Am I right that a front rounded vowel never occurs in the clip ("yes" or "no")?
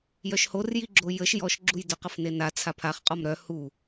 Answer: no